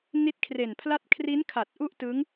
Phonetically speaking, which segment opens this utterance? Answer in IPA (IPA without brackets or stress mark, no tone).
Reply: n